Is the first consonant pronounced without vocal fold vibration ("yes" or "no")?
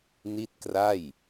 no